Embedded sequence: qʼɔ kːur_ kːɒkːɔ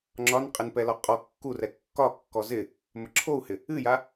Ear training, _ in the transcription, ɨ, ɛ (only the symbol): ɛ